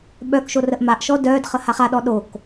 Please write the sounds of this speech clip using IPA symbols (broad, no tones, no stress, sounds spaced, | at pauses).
ɓ œ k ʃ o r ə ʔ m a ʔ ʃ ɔ d œ d χ ə h a χ a ɗ ɔ ɗ o k